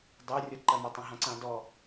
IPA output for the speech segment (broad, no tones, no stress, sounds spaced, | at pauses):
d ɑ rʲ ɔ ǃ ɐ m ɔ tˤ ɐ̃ ɦ ã ǀ ã d ɔ